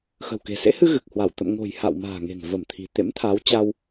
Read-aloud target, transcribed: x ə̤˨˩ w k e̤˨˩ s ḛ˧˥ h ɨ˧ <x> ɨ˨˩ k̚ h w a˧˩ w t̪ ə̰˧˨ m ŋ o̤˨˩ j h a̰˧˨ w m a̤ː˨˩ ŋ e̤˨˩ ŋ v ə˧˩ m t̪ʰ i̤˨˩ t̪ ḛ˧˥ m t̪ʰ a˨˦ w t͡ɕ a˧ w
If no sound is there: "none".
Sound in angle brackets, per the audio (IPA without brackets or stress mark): ɣ